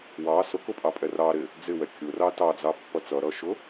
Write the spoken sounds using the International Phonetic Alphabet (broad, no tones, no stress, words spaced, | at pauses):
wɑ sʊkʊpʼɑpʼɛ rɑɾɪ | d͡zɪwɛ kʲʊrɑ tɑd͡zɑpːʌ t͡sʌɾʌʃʊ